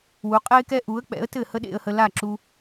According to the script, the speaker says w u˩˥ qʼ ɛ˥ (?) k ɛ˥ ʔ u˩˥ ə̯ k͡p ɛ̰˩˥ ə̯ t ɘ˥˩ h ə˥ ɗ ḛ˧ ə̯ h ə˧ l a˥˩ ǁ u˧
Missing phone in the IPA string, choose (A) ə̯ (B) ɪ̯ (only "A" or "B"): B